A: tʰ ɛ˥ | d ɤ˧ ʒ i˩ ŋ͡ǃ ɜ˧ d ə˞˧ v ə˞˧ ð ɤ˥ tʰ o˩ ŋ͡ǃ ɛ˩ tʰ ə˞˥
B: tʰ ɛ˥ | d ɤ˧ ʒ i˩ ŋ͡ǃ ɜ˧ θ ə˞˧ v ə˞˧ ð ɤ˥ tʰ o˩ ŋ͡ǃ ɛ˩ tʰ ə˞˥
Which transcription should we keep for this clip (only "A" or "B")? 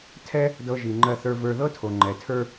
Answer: B